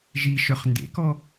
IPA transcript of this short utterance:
ʒiʃœχ ndḛkɔ

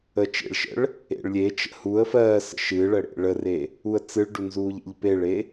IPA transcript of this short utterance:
ə t͡ʃḛɭʃə̰ɭ | ḛɭlʲet͡ʃə̰ huə̯ fɜːsə̰ ʃɨɭə ɽḛɭəre | uə̯t͡sɨɭɖu nzuːʎḛʎpeɭe

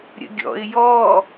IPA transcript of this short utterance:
ɾʲə̰ɡʲɔ̰ɪ̯ jɔ

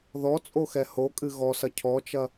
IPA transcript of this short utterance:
ðɔt͡sʼoxɛ hokʼɨ ɣɔsɐ cʰɔt͡ʃɐ

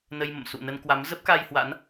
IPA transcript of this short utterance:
nə˧jmə̰˧˨m sṵ˧˨nə˧nkwa˨˦m zə˦˥p̚ka˧jhwa̰˧˥n

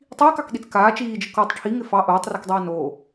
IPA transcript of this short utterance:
tˤiːkɑkɗit͡s kaː t͡ʃiːd͡ʒɪ kɔtˤ ʈʰiŋɪ fɑ ʔoːtˤrikdˤɛː noː

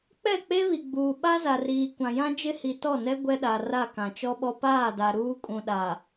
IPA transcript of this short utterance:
k͡pɛ˦˨k͡pe˦βi˨ɡ͡buː˨ ɓa˦za˨ riː˨kʷã˨jã˦ d͡ʒɪ˦hi˨tɔ˦˨nɛ˦ ɡʷɛ˦ɗa˨ra˦˨ kã˨t͡ʃɔ˦ɓɔ˦ paː˦˨da˨ ɾuː˦kʼũ˨ɗaː˨

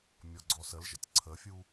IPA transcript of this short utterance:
mʲɔɡ͡ǀɔsəlʒə̰tʲ ǀʰəfʲu

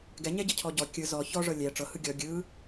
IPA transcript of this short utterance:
ɡɛɲɛɟɤ cʰɔɟɔ kʲɯ zɔ çɔʐɤ lʲɛ ʈ͡ʂɤhɯ ɡʲɔ ɡʲɯ

